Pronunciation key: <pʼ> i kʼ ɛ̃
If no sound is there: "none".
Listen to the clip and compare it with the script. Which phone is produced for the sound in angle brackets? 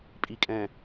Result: pʼ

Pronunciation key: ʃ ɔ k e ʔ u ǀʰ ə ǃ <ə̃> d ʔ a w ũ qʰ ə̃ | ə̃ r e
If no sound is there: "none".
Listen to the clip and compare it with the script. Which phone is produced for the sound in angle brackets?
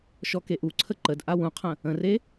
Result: ə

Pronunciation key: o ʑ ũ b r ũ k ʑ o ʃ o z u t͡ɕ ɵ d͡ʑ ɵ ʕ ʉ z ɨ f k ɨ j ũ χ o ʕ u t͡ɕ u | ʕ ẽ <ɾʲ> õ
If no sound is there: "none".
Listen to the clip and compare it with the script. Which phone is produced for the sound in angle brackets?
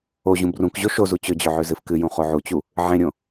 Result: ɾʲ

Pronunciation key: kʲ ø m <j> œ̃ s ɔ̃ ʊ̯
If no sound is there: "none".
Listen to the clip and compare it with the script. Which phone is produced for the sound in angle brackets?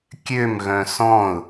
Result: ɣ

